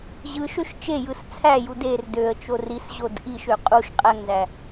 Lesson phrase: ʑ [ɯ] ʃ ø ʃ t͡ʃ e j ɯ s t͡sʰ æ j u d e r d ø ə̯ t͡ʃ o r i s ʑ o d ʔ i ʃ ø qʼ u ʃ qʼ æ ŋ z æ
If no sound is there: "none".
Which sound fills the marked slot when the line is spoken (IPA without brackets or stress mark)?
ɯ